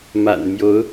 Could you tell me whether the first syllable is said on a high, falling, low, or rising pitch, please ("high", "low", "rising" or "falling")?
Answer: low